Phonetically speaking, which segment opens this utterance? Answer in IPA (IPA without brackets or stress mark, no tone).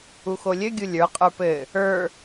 u